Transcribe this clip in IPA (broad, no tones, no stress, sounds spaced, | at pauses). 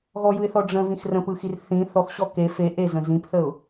ɣ ɔ j ɯ ɪ̯ θ ɔ ɖ͡ʐ ə̃ v ĩ x r ə̃ p ɯ x i r θ ĩ θ ɔ x ɕ ɔ k e f e ʔ e z ə̃ z ĩ p θ ə ʊ̯